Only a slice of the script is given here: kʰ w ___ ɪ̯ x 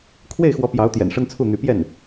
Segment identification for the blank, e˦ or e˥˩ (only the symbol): e˥˩